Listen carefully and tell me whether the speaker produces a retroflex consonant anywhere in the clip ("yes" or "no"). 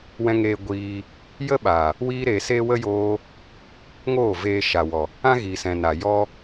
no